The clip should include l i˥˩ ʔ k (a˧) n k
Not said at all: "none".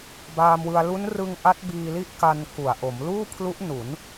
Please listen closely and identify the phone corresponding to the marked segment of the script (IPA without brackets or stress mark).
a˧